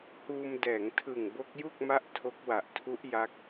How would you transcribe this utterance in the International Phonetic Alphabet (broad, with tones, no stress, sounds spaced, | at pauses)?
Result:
h uː˧ m d ɛː˩˦ ŋ tʰ ɯ˨˩ ŋ b o˦˥ k̚ j u˥˩ k̚ m a˦˥ ʔ tʰ o˦˥ k̚ w a˨˩ ʔ tʰ u˦˥ ʔ j a˦˥ k̚